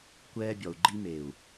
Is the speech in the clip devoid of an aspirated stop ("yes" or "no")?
yes